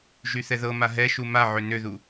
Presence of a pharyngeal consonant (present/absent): present